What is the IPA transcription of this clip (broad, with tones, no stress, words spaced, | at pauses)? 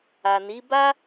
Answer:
a˨ni˨˦ ba˦